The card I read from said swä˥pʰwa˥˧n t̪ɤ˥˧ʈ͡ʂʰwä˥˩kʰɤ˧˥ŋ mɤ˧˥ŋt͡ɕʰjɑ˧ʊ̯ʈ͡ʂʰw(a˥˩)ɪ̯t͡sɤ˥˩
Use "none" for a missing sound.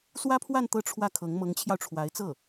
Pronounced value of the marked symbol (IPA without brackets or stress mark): a˧˥